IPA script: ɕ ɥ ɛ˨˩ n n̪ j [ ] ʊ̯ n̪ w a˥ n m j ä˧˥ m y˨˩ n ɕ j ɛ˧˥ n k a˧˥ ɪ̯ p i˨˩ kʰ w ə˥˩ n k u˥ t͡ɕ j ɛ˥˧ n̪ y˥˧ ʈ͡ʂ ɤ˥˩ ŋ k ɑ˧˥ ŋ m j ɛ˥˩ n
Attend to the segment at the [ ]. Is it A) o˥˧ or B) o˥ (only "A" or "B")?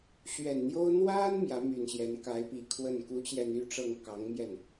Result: B